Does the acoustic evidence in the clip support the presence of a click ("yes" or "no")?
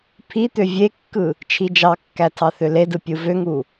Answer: no